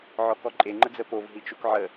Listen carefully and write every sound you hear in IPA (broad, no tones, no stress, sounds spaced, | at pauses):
ʕ ɔ k ɔ ǃʼ e ŋ͡ǃ ə d͡z ə p o v ɦ i t͡ʃ u k ʕ ə